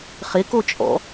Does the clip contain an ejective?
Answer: yes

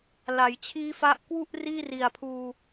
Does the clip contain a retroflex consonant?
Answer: no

